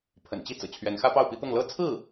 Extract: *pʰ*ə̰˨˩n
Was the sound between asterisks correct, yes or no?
yes